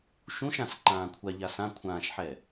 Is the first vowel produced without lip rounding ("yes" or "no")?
no